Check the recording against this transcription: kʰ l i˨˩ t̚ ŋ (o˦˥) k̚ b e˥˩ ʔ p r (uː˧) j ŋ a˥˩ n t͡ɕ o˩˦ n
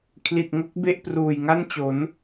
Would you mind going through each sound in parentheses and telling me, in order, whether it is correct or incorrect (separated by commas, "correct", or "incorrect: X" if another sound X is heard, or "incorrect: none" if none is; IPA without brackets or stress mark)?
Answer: correct, incorrect: uː˨˩